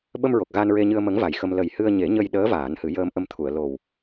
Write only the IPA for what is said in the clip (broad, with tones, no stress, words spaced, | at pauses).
ɓə˧mɹo˨˩k̚ ɣa˧nɹe˧ɲɨ˧ə̯ mə˧˥ŋ va˨˩jxə˧m lə˨˩jhɨ˧ə̯ ɲe˨˩˦ ɲə˧jɗəː˧˥ vaː˨˩˦nhɨ˨˩˦jəː˧mʔə˧m t̪ʰu˨˩˨ə̯lo˨˩w